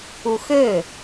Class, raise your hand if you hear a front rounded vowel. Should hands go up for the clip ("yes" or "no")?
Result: yes